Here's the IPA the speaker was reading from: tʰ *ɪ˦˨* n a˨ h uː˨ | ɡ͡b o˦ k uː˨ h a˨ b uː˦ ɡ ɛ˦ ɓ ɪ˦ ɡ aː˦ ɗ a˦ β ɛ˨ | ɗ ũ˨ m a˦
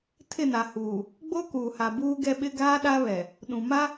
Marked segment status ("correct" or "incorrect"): correct